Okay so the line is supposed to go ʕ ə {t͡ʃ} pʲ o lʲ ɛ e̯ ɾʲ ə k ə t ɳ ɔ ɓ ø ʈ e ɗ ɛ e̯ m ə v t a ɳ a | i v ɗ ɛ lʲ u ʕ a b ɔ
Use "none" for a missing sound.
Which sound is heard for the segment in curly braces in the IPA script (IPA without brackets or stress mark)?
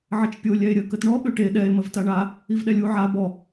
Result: t͡ʃ